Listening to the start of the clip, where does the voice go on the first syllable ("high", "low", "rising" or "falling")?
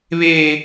high